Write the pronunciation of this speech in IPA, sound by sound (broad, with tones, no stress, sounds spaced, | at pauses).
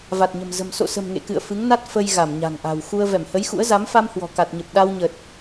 v a˨˩ t̚ ɲ ə̤˨˩ m z ə̤˨˩ m s o̰˧˨ s ə̤˨˩ m ŋ ḛ˧˨ k ɨ̰˧˨ ə̯ f ɨ˨˦ ŋ n a˦˥ t̚ f ə˧ j ɣ a˧˩ m ɲ a̤˨˩ ŋ ʔ a̤˨˩ w x u˧ ə̯ v ɛ˧˩ m h ə˨˦ j x ṵ˧˥ ə̯ z a˨˦ m f a˧ m h w ɔ̤˨˩ k a˨˩ t̚ ɲ ə˨˩ p̚ ɗ a˧ w ɲ ə˨˩ t̚